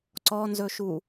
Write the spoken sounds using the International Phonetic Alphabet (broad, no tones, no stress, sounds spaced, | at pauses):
ǀ ɔ n z ɵ ʃ u